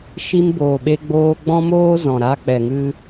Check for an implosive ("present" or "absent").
present